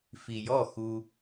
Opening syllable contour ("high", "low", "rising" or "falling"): low